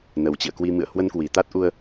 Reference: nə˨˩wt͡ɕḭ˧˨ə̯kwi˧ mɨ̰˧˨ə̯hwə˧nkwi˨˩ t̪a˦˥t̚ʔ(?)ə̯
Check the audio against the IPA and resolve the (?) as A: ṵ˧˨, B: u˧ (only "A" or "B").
B